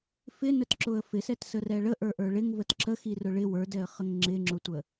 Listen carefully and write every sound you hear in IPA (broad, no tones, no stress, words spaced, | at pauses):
fɪnətǁʊə̯ fɪsɛtsə rɛɭə ʔə˞ʔə˞ɭɪŋ vətǁə xirʊɭɪ wə˞dɛə̯χəŋ ŋ͡ǁɪŋ͡ǁʊtʷə